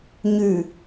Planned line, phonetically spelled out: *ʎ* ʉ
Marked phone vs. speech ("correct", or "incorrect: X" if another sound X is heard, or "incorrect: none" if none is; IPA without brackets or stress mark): incorrect: ɲ